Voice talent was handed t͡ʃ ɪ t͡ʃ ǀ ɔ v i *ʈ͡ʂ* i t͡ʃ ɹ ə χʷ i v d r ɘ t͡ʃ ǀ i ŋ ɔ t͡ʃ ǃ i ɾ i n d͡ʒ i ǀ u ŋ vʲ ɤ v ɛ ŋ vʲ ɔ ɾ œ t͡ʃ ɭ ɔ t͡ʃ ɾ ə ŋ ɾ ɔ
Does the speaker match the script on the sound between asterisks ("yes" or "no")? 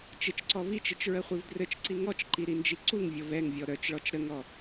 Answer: no